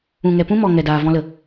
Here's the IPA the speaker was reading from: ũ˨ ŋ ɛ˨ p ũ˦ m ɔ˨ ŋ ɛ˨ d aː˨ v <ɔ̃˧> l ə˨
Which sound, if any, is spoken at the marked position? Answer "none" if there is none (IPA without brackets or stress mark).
ɔ̃˧